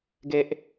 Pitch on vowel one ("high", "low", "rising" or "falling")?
high